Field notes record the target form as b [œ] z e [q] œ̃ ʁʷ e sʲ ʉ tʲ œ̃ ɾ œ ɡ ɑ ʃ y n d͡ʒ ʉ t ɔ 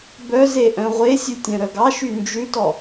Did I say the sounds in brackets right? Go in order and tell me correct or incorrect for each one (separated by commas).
correct, incorrect